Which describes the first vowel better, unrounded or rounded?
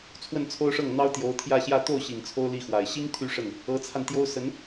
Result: unrounded